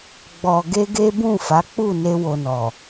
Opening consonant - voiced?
yes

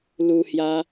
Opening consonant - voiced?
yes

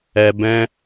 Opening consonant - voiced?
yes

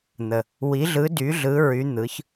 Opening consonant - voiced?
yes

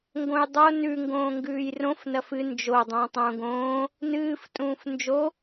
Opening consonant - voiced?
yes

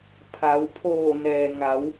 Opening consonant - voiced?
no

